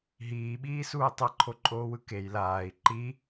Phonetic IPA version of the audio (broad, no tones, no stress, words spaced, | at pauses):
ɦiːɓiːsuː tˤʌǃʰoǃʼoːwɯ kej laːi̯ ǃi